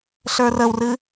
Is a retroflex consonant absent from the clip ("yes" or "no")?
yes